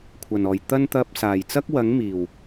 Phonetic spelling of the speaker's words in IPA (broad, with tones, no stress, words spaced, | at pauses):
kʷʰɐ˨˩nɔː˨˩j t̪ɐ˧nt̪ɐ˨p̚ saː˨˩jt͡sɐ˥k̚wɐ˨˥ŋmiː˨˩w